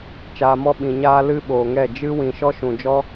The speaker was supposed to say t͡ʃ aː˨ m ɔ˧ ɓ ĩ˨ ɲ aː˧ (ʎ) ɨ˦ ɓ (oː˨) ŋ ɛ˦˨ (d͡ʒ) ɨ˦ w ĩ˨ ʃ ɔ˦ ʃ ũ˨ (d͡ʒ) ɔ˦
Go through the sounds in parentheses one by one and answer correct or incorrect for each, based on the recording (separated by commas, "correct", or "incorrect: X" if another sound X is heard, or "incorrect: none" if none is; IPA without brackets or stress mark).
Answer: incorrect: l, correct, correct, correct